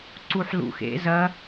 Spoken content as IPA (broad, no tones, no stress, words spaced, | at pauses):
ǀuħlṵ xḛ zɐ